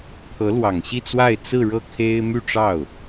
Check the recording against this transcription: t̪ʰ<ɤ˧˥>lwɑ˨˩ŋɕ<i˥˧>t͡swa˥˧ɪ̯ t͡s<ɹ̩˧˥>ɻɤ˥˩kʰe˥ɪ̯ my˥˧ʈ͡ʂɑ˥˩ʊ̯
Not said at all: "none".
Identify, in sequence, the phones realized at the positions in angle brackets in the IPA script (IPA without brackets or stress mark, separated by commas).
ɤ˧˥, i˥˧, ɹ̩˥˧